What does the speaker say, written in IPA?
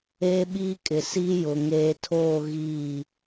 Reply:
eː˦ ɓ iː˦ kʼ ɪ˨ s i˦ j ʊ˨ ŋ eː˨ tʰ oː˦˨ ɣ iː˦˨

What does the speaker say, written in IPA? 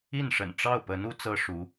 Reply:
i˥˩ n ʂ ə̰˨˩ n ʈ͡ʂ ɑ˥˩ ʊ̯ p ə˧˥ n u˧˥ t͡s ɤ˥ ʂ u˧˥

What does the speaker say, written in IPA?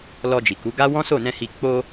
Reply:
l ɔ˧ d͡ʒ i˨ k u˨˦ ɡ a˦ w ɔ̃˦ s o˦˨ n ɛ̃˧ h i˧ k͡p o˧

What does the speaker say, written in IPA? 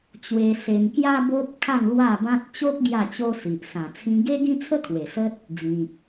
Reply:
t͡ɕ w e˧ s e˧ m k j a˦ b o˦ p̚ kʰ a˥˧ ŋ l w a˥˧ b ã˦ t̚ t͡ɕ o˦ k̚ ɡ j a˥˧ t͡ɕ o˦ s i˨ ʔ s ã˨˩ t͡sʰ ĩ˧ ɡ e˦ ɡ ĩ˦ t͡sʰ ə˦ kʰ w e˨˩ s ə˦ t̚ | d͡z ĩ˨ k̚

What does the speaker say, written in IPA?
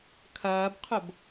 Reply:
kʰ ɐː b qʰ o b

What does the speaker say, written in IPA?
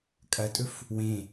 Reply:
kʼ ɐ tʼ ɵ f | w ẽ

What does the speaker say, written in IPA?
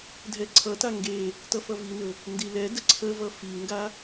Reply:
dʱ ɛ ǀʰ ʌ t a ŋ ɡ e | t ʌ f ʌ v i n ɵ | n d i l ɛ d ə ǀʰ ə v ʌ f i ŋ ɡ a

